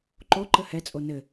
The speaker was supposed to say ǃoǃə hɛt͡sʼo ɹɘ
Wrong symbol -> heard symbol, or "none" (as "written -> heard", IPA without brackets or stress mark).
ɹ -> n